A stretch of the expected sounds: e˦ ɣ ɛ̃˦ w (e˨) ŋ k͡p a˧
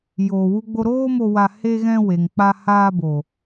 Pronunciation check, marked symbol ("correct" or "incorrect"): correct